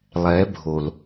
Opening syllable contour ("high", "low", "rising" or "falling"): rising